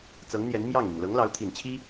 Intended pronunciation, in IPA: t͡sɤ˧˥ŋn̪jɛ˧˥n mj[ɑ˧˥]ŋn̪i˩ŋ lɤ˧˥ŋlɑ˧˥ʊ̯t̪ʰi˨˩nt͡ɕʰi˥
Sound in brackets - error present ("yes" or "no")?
yes